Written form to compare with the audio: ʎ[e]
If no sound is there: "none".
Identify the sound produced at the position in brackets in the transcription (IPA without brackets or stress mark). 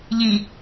i